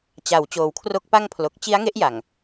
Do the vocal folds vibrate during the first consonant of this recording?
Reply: no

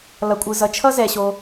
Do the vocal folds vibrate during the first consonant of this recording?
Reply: yes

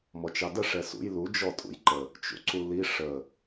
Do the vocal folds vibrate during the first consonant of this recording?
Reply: yes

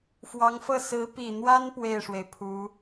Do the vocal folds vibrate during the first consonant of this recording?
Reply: no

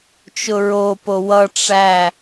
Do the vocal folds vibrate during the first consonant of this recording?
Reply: no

